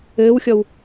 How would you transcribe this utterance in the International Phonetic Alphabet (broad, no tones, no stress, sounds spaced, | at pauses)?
ɘː w xʲ ɔ w